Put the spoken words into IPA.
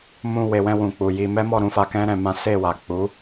m ũ˧ w e˨ w ɛ̃˧ w ũ˨ k͡p u˨ j i˧ m ɛ˦ m ɔ˦˨ ɾ ũ˨˦ f a˧ k ɛ̃˦ ɾ ɛ̃˧ m ã˦ s e˦˨ w a˨ k͡p u˨˦

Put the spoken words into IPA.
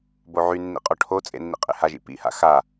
b o ʕ y nː ḭ qʼ ɔ ʈʰ o t͡sʼ ḛ nː ḭ qʼ ḛ h a ʒ ḭ p ḭ h a̰ x a

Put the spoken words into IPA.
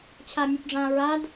t͡ɕʰ a mʲ o p ɖ͡ʐ ã ɹ a d

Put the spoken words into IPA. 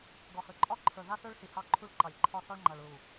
ɡ ɒ˨ h ə˞˨ ǃʼ ɒ˦ ǃʰ ə˞˨ ð a˦ s ə˞˦ ɭ s i˨ h ɑ˦˨ ǃʰ u˦ ɭ ǃ ɑ˨ lʲ ǃʰ ɒ˦˨ s ɒ˦ ɭ ŋ͡ǃ a˨ ɭ ɹ u˨

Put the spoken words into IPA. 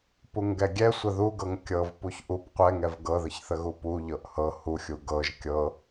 p u ŋ ɡ ɛ ɡʲ ɛ sʷ ə ð u ɡ ɤ ŋ kʲ ɤ v p u ç ʔ u p qʷ ɛ ŋ ɛ v ɡ ɤ ð ə ç θ ə ɣ u p u ʎ ɤ ʔ h ɤ h u xʲ u ɡ ɤ ʒ kʲ ɤ

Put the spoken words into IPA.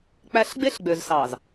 k͡p æ˦ ɬ ɡ͡b e˦ ɬ ɡ͡b ø˨ z s ɑː˨ z

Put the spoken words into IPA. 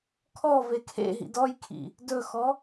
kʰ ɔ v e kʰ ḛ ɦ ḭ d ɔ j kʰ ḭ | d ɵ x ɔ

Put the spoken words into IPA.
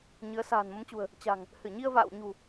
ɲ ɨ˨˦ ə̯ s a̤ː˨˩ n m ə˨˦ m t͡ɕ ṳ˨˩ ə̯ | t͡ɕ a̤˨˩ ŋ | h ɨ˧˩ ɲ i˧ ə̯ v a̰ː˧˨ w ɲ ṳ˨˩

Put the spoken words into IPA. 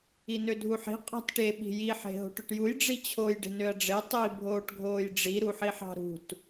i n ø dʱ u ħ i̤ qʼ ɑ̤ t ʈ e ɓ i̤ j i ħ e̤ ɦ o̤ ʈ ø ʈ j u j ɖ͡ʐ i t͡ɕʰ o j ɖ e̤ n ø ɐ̯ ɖ͡ʐ e tˤ i bʱ oː ʈ ɡʱ oː j ɖ͡ʐ i ɾ u ħ i ħ ɑ̤ ɾ ṳ t

